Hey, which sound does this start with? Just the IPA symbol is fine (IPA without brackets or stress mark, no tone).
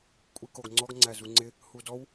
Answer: kʷʼ